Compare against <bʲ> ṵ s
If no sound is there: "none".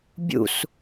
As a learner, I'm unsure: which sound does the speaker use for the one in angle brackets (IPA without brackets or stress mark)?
bʲ